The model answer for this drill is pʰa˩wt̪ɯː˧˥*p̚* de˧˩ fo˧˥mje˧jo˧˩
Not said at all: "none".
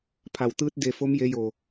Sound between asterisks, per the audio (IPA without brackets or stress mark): t̚